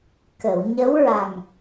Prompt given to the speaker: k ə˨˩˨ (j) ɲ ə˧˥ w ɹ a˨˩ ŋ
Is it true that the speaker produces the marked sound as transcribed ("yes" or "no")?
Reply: no